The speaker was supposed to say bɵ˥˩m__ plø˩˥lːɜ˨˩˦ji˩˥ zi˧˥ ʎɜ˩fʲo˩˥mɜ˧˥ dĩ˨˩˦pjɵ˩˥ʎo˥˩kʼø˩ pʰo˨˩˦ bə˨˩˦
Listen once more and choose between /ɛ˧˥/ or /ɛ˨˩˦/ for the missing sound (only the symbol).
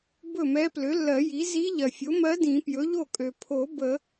ɛ˧˥